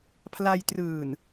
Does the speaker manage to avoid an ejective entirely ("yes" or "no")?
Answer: yes